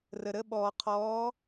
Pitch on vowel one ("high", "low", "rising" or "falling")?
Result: low